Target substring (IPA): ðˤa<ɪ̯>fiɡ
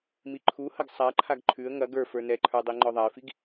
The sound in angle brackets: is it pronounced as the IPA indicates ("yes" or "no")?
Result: yes